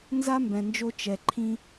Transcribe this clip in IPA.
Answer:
n z a˦ m b ɛ̃˨ n d͡ʒ o˧ t͡ʃ ɛ˨ ǃʰ ĩ˧

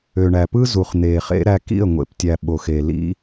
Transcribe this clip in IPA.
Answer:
ø˨ ɳ æ˨ p ɯ˦ z u˨ χ n̪ eː˨ χ ḛ˦ ɾ æ˧ k ḭ˦˨ ə̯ ŋʷ ḛ˨ p tʲ æ˨ ɓ o˨ x e˨ l ḭ˦

